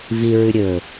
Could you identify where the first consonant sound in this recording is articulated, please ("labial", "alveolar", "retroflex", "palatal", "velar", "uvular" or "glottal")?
labial